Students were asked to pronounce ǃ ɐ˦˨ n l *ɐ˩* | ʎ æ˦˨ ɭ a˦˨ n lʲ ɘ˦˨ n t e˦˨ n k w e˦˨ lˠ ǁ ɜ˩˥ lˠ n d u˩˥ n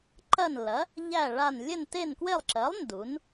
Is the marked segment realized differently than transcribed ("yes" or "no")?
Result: yes